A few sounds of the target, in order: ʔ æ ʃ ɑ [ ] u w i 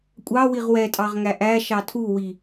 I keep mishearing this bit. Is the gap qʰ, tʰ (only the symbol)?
tʰ